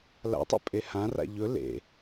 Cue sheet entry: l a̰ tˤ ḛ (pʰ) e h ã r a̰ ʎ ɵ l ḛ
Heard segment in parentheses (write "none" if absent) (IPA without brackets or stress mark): pʼ